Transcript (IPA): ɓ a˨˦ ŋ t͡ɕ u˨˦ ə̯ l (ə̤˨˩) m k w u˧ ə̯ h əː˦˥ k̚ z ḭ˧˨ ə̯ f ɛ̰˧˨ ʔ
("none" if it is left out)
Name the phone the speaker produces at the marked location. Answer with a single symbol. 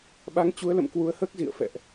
ə̰˧˨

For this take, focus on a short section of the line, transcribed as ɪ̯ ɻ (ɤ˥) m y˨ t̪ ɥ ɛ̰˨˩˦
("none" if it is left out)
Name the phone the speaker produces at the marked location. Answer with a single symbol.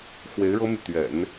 ɤ˥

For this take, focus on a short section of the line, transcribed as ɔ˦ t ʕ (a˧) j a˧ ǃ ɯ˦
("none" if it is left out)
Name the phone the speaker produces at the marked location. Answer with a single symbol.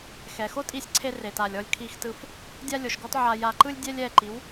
a˧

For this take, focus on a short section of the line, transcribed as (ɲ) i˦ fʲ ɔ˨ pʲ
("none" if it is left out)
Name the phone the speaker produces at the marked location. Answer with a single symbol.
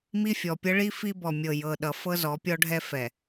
m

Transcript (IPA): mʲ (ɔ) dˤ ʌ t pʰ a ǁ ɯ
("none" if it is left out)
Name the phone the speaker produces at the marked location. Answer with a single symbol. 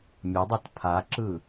ʌ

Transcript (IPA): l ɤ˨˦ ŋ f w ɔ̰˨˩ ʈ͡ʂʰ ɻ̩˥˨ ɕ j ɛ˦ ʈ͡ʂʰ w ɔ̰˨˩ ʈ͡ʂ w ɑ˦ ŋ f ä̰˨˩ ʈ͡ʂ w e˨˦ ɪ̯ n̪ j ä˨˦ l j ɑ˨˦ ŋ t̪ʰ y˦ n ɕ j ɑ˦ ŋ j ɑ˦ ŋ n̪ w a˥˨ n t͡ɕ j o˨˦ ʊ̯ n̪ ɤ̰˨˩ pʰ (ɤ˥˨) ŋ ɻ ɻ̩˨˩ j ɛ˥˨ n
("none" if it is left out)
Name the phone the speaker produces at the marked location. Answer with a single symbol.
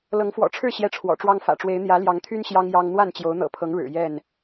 ɤ˨˦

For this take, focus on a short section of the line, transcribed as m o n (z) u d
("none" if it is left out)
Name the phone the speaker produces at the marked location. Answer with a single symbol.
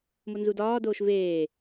z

